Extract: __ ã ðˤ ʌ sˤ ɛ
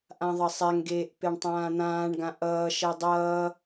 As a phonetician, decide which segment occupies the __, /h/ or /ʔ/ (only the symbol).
ʔ